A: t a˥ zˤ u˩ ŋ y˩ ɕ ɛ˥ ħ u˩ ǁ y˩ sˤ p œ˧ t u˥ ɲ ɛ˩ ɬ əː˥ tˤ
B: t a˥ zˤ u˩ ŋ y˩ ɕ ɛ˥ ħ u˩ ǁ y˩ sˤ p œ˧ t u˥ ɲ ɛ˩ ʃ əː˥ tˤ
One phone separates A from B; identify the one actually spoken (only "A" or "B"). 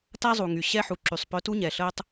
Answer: A